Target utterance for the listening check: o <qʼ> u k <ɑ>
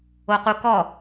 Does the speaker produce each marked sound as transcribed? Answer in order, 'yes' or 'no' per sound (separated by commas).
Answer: no, no